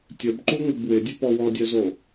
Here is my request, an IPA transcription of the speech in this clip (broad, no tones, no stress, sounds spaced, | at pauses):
tʲ ə b ǃ u ŋ u b w ɪ dʲ ə p ɔ w ɔ dʲ œ z o